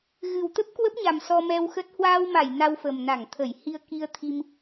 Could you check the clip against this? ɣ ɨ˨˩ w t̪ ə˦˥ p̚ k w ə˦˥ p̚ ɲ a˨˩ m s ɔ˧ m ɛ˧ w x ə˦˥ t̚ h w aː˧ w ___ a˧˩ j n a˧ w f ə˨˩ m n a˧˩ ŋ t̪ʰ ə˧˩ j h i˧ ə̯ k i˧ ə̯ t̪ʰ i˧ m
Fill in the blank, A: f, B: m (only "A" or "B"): B